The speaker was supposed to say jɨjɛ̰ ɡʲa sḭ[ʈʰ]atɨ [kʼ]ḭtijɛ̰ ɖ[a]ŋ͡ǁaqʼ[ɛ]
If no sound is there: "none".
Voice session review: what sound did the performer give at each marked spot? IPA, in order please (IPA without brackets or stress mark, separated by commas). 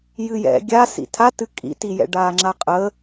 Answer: tʰ, kʼ, aː, ə